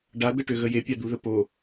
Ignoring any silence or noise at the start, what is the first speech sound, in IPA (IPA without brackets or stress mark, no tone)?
ɖ